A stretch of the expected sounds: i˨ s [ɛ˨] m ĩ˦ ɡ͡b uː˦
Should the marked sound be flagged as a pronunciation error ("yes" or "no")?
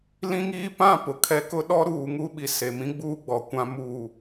yes